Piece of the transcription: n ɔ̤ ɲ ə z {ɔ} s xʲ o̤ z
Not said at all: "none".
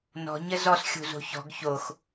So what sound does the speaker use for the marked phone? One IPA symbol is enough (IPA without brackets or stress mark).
ɔ